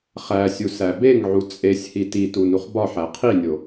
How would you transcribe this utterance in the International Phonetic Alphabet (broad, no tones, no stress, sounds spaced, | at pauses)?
χ æ sʲ u s æ b e ŋ ʕ u t͡sʼ e sʲ h i t i t u n u χ b ɒ ħ æ qʰ i nʲ o